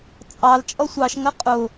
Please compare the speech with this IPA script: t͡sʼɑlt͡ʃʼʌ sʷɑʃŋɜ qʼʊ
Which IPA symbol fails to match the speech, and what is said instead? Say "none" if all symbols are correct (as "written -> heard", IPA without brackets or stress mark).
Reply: none